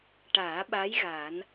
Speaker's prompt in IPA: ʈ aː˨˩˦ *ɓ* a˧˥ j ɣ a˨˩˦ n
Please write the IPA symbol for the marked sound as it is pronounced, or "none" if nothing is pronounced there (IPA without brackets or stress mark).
ɓ